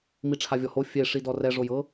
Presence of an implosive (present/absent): absent